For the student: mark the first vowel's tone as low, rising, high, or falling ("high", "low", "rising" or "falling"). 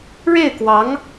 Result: falling